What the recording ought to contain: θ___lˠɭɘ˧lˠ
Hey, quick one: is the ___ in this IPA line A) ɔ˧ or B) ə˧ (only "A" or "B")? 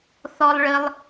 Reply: A